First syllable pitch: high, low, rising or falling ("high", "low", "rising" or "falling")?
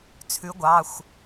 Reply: rising